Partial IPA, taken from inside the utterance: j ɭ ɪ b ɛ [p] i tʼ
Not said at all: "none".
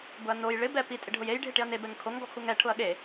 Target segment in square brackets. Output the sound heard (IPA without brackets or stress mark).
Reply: p